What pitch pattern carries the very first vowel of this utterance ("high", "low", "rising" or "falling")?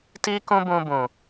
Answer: high